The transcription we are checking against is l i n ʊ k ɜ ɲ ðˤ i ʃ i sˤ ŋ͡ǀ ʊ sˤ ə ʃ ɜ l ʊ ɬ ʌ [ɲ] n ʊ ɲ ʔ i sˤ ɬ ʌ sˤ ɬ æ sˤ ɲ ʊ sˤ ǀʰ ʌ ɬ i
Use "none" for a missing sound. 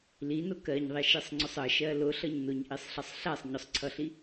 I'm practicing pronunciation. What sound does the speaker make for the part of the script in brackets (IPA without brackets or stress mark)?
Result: ɲ